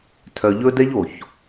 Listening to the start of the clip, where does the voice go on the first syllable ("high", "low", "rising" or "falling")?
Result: low